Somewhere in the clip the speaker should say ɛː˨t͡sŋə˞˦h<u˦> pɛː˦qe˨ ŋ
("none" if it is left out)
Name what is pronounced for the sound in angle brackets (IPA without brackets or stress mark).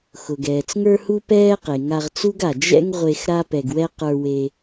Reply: u˦